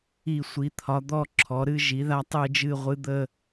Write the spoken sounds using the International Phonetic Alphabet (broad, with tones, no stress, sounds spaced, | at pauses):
i˧˩ sʷ i˩˧ t̪ʰ ɒ˩˧ d̪ ɔ˧˩ ǁʰ ɔ˩˧ ɾ ɨ˥˧ ʒ i˩˧ ð a˧ tˤ ɨ˧˩ d͡ʒ ɨ˧˩ ʁʷ ɨ˩˧ d̪ ə˧˩